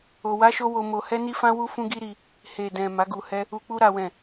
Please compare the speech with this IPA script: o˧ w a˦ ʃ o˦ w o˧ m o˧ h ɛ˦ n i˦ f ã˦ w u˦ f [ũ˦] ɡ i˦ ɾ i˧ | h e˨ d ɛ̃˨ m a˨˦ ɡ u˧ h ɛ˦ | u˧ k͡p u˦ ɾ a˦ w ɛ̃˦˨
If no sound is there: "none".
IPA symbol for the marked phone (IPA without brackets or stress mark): ũ˦